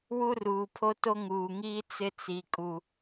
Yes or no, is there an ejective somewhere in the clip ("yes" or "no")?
yes